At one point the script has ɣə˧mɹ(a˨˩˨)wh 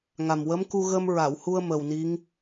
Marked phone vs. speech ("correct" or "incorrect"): correct